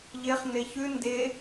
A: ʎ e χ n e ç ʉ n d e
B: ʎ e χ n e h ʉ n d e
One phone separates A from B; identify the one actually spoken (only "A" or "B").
A